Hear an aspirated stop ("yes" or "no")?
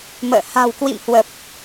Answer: no